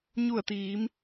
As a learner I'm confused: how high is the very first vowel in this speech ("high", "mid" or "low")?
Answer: high